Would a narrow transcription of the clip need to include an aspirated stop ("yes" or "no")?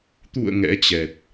no